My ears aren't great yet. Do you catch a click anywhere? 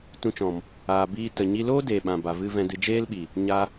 no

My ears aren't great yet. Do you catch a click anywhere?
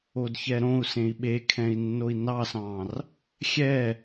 no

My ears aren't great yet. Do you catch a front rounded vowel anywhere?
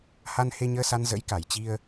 no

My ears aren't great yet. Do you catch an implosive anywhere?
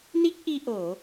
no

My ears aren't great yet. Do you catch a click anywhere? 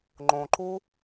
yes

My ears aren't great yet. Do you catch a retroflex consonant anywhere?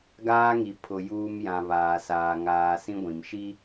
no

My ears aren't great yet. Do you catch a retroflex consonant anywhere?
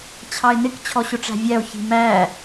yes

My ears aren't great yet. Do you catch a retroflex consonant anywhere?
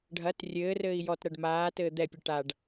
yes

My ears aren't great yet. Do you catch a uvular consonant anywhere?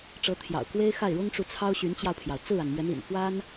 no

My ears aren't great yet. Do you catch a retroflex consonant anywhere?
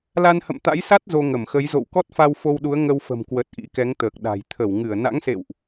no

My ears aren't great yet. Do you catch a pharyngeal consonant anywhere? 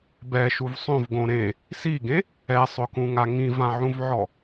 yes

